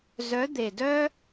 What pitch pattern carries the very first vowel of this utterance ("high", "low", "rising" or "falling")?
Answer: rising